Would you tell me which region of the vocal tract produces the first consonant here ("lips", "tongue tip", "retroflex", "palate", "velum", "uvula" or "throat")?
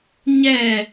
palate